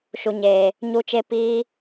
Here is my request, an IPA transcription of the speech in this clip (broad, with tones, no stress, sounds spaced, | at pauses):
ʃ u˨ ɲ eː˨ | ɲ u˦ t͡ʃ e˦ p iː˦